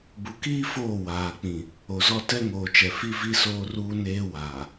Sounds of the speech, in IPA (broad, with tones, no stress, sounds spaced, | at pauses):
b u˨ k iː˦ f oː˦˨ w aː˨ k͡p ĩ˨ | o˨ z ɔ˦ t ɛ˦ ŋ oː˨ t͡ʃ ɛ˨ f i˦ v i˦ s oː˦ r uː˦ n eː˦ w aː˨